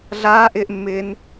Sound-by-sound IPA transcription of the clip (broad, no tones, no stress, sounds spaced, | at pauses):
ɮ aː ʔ ɪː ʔ mː ɪː n